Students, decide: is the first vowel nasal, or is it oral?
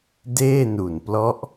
oral